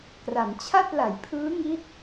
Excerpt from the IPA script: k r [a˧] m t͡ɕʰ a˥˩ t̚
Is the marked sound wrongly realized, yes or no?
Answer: yes